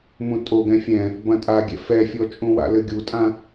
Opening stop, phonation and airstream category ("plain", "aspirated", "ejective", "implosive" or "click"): ejective